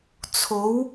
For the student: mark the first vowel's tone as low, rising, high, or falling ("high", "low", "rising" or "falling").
rising